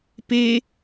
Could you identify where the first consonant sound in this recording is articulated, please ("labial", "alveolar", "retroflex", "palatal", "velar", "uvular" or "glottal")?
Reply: labial